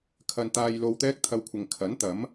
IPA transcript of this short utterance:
kʰ ɐ˧ n t̪ aː˧ j l o˧ w t̪ ɛː˥ k̚ t̪ʰ ɐ˧ w kʷʰ ɪ˨ ŋ kʰ ɐ˨˥ n t̪ ɐ˨˥ m

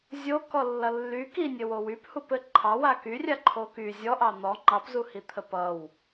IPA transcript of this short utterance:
zʲ o k ɔ lː ʌ lː y k i nʲ ɘ w o w y p h u p ɘ ǃʰ ɑ w a k y rʲ a ǃʰ o k y zʲ ɔ ʔ ɑ n̪ ɔ ŋ͡ǃ ɑ p z u h i t̪ʰ ə p ʌ w

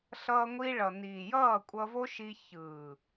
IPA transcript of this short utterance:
ɬ ʌː˧ ŋʷ i˧ ɭ ʌ˨ n iː˨ j ʌː˦˨ kʷʼ ʌ˧ v o˦ ʃ i˧ ç ɯː˨

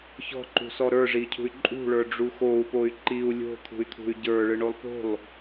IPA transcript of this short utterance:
ç ɔ̤ ǃ ṳ s ɔ ɾ ə˞ ʐ i cʰ ṳ y̯ ǃʼ ṳ ɭ ə˞ ɖ͡ʐ u x o u̯ p o y̯ ǃ i u̯ lʲ o̤ t̪ʰ ṳ y̯ t̪ʰ ṳ y̯ ɟ ə˞ ɭ ɯ ɳ o lˠ p o̤ lˠ

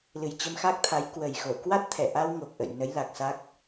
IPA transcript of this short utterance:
l ɨ˨˩ j t͡ɕ ə˧ m x a˦˥ k̚ t̪ʰ a˨˦ j k w ə˨˩ j x o˧˩ k w a˦˥ t̚ t̪ʰ ɛ˧˩ ʔ a˧ w ŋ o˨˩ k̚ ʔ ə̰˧˨ j n ə˨˦ j l a˨˩ k̚ s a˦˥ k̚

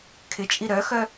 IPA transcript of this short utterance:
kʰ ɪ t͡ʃʼ i ɾ œ x œ

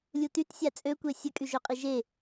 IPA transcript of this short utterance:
lʲ u t y t sʲ a t͡sʼ ø kʷ e sʲ ə kʼ y ʒ ø qʼ i ʒ e

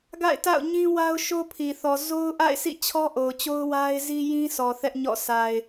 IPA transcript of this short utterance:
ɡ a̰˦˨ ɪ̯ t a̰˦˨ ʊ̯ ɲ ĩ˦ w a˦ ʊ̯ ʃ o˦ pʰ i˨ θ ɔ˨ z o˦ ʊ̯ ʔ a̰˦˨ ɪ̯ sʰ ḭ˦˨ t͡ɕʰ ɔ˦ ʔ o˨ ʊ̯ t͡ɕ o˦ ʊ̯ w a˦ ɪ̯ z i˦ j ĩ˦ sʰ ɔ˨ θ ɛ˦ ʔ ɲ ɔ̰˦˨ sʰ a˨ ɪ̯

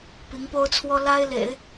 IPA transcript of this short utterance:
p i˧˥ ŋ p o˥ ʊ̯ t͡sʰ w ɔ˥ l a˥ ɪ̯ l ḛ˨˩˦ ɪ̯

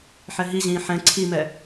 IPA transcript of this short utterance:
ħ ɛ ɦ i ʑ ĩː ħ ɛ̃ ǀʰ i m ɛ

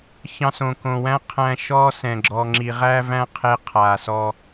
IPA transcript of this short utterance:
ç ɑ̃˧ s õ˨ k õ˨ w æ̃˦ qʰ æ̃˧ ʃ ɔ˧ s ɛ̃˨ ɡ͡ǁ ɔ˧ ŋ͡ǁ i˧ ʁ æ˦ v æ̃˦ qʰ e˦ qʰ a˧ s ɔ˦

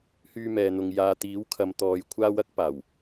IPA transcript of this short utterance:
h yː˧ m ɛː˨ n̪ ʊ˨ ŋ j aː˨ t̪ iː˨˥ w kʰ ɐ˨ m t̪ ɔː˨ j kʷʰ aː˥ w ɐ˥ k̚ p aː˨˩ w

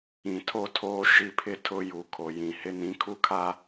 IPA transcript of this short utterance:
ĩ˨ tʰ o˦ tʰ oː˦ ʃ i˦ pʰ ɪ˦ tʰ ʊ˦ j u˨ kʰ o˨ j ĩ˨ h ɪ˦ n ĩ˨˦ kʰ u˦ kʰ a˦

